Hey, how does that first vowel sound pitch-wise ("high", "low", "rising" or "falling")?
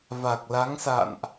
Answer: low